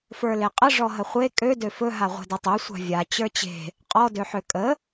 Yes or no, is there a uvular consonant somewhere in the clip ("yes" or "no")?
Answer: yes